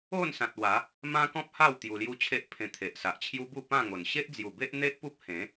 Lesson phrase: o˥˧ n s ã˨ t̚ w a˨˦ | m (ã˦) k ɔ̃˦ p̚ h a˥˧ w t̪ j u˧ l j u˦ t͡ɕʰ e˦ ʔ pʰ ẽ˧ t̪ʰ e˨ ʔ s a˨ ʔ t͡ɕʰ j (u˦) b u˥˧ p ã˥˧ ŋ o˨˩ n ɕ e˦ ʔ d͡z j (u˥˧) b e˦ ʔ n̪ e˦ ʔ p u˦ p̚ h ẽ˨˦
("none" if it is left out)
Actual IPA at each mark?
ã˦, u˦, u˨˩

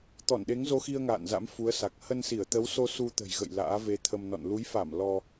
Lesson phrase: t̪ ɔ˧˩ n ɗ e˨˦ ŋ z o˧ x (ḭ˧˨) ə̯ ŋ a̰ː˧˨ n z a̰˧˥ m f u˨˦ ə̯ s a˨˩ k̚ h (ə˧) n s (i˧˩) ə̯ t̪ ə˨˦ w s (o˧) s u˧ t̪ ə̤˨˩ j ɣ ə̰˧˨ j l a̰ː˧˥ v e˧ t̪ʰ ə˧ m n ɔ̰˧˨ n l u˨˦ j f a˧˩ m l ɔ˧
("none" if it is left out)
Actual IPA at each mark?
i˧, ə˧, i˧˩, o˧

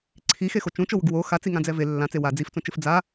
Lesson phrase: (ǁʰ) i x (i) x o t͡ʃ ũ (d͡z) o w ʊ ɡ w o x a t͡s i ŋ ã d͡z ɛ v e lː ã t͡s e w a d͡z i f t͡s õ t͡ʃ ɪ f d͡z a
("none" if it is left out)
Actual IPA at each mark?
ǀʰ, e, t͡ʃ

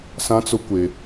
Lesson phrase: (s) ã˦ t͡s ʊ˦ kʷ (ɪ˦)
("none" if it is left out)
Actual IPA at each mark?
s, ɪ˦

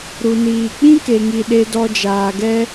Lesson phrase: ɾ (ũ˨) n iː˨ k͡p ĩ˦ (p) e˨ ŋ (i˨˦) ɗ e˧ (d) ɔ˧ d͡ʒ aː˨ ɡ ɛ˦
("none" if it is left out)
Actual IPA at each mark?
u˨, k, i˨, d

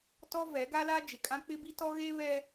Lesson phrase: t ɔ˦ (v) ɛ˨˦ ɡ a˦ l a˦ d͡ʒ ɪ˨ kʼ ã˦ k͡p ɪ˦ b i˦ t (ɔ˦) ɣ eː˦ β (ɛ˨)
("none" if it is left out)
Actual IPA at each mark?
v, ɔ˦, ɛ˦

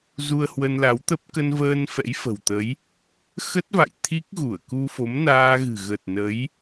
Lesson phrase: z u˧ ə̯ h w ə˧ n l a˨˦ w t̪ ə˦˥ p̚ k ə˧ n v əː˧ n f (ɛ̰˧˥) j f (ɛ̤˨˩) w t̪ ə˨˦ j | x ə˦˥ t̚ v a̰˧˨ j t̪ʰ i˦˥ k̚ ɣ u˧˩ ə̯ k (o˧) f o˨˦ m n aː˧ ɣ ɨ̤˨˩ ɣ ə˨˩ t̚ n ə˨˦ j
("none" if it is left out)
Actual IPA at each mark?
ɛ̰˧˥, ə̤˨˩, u˧

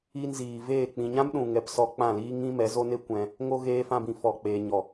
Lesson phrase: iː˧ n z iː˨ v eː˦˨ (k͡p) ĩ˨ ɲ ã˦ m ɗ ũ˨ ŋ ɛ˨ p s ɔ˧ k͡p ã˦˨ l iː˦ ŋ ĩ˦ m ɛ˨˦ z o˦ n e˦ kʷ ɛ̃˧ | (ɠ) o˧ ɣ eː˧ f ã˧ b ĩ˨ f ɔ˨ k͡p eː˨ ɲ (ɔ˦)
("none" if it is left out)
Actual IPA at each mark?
k͡p, ŋ, ɔ˨

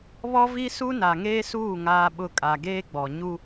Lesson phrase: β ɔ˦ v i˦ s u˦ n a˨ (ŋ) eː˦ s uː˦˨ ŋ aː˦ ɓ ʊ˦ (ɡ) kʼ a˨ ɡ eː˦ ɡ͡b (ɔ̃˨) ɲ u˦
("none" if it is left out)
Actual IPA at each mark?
ŋ, none, ɔ˨

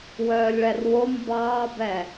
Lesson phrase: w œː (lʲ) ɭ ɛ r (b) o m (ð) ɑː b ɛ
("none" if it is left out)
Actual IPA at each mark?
lʲ, w, b

